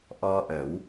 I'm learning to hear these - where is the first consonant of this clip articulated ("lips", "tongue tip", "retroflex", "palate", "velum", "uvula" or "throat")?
throat